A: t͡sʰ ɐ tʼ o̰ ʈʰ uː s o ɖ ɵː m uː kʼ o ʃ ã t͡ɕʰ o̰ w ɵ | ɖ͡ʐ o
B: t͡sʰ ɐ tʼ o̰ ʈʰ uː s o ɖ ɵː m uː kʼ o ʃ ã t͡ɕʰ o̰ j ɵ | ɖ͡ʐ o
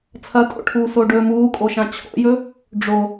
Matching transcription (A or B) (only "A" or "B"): B